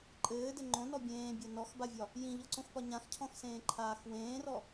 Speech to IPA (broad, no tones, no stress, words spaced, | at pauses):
ǃʼɘːdɘ ŋ͡ǃõnɔ bʲẽːbʲɒ nɔxbavʲɒ | jĩʎɔǀõxpɒ ɲãxcʰɔ̃xsẽːǃʰaːx wẽːrɔ